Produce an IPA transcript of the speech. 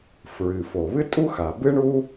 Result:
f ɹ ɨ˩ f o˩ β ɨ˥ tʼ u˥ x a˩ b ɨ˥ ɳ u˥

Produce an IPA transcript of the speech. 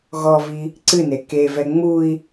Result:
ɣ ɔ v i | ǀ ɨ n e k e v ɛ ŋ͡m u i̯

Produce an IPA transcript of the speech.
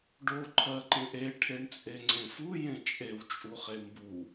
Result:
ɖ o ǃʰ ɜ ǃ ẽ ʔ e ʈʰ e ɳ t͡sʼ e ŋ͡ǀ ẽ f u j ẽ t͡ʃʼ e w t͡ʃʼ u χ e m b u

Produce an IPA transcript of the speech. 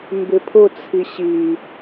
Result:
m b ɪ pʰ ʊ t͡sʰ i ɕ i

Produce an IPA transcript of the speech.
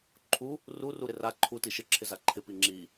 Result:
ǃʰ u | r u r u ɾ ɪ r a ǃʰ u t i ʃ ɪ ǁʰ ɪ z a ǃʰ ɪ p i ŋ͡ǁ i

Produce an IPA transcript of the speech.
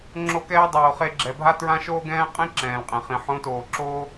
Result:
ŋ͡ǁ o˧ k ɛː˧ dˤ oː˨ χ e˧ ɡ͡ǁ ɛ˨ bʱ a˦ t ɹ ã˦ ʃ oː˦ ɡ ɛ̃ː˦ qʼ ẽ˦ ǁ ɛ̃ː˨ l qʼ ẽ˨ χ ĩ˨ ħ õ˨˦ t oː˨ ǁ oː˦

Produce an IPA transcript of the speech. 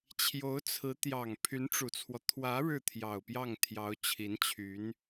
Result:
t͡ɕʰ j o˧˥ ʊ̯ t͡sʰ ɹ̩˧˥ t̪ j ɑ˨˩ ŋ pʰ y˧˥ n ʈ͡ʂ u˨˩ t͡sʰ w ɔ˦ t̪ʰ w ä˧˥ ɻ ɻ̩˥˩ t̪ʰ j ɑ˨˩ ʊ̯ p j ɑ˥˩ ŋ t̪ʰ j ɑ˧˥ ʊ̯ t͡ɕʰ i˧˥ n t͡ɕʰ y˧˥ n

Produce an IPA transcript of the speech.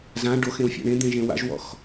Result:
z ã ɖ o x ẽ w fʲ a̰ ɳ ẽ d̪ ẽ ʒ ẽ w a̰ ʒ w ɔ̰ x

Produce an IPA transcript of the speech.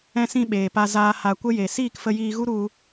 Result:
ɛ̃˧ s ĩ˧ ɓ eː˨ p a˧ z aː˦ h a˧ kʷ ə˦ j e˨ s iː˦˨ k f ə˧ j iː˧ ɣ u˦ ɾ u˦

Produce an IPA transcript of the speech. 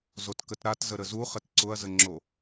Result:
z o t k ə t ɾ a t z ə ɾ ə z u χ ə t ǀ ʊ ɐ̯ z ə ŋ͡ǁ o

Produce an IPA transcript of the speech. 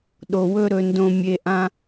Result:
ɗ o˨ w ɵ˦ ɾ ɵ˧ n d õ˧ mʲ e˧ ʔ ã˦

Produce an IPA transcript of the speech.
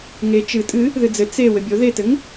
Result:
ŋ e t͡ʃ ɨ tʼ ɨ | ð ɨ d͡z ɘ t͡s e w ɘ bʲ o ð e t ɘ ŋ

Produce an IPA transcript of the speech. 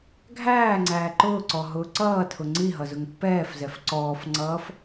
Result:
ɡʱ æː ŋ͡ǀ æː ǃ ʊː ǀ ɔ ɦ ʊː ǀ ʌː tʰ ʊ ŋ͡ǀ i ɦ ʌ z ʊ ŋ pː ɛː f z ɛ f ǀ ɔː f ŋ͡ǀ ʌː f

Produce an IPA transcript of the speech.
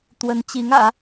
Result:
t̪ w ə˧˥ n t͡ɕ i˧˥ ŋ ä̰˨˩˦

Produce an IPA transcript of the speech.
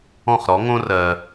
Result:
ɔ̃˥˩ χ ɾ ɔ˩˥ ŋ õ˥ r ɜ˩

